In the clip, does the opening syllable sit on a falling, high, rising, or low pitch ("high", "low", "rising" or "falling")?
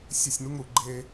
falling